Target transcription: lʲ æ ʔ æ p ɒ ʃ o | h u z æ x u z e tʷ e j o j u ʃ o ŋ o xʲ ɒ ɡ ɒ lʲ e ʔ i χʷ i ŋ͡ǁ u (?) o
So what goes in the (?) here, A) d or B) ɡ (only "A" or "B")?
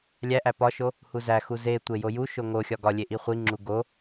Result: B